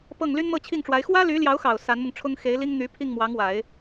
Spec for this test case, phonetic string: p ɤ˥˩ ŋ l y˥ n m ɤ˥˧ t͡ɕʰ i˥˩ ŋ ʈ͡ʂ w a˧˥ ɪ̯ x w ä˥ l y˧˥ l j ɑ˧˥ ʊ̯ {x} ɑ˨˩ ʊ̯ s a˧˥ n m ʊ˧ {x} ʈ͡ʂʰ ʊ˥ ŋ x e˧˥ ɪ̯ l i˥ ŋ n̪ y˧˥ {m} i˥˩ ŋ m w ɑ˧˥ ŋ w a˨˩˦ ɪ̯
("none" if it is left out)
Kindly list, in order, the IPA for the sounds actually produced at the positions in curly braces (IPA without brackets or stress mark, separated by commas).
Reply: x, ŋ, pʰ